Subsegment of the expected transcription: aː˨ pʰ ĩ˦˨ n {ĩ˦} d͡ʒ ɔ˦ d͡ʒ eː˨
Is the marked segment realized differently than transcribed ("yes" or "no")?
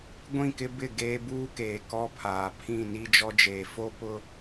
yes